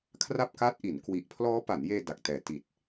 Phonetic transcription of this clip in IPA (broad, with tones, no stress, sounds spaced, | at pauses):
kʰ r a˥˩ p̚ k aː˦˥ t̚ ʔ i˩˦ n k w i˦˥ ʔ pʰ l ɔː˦˥ p a˩˦ n j eː˧ d a˨˩ k̚ t ɛː˩˦ t i˨˩ t̚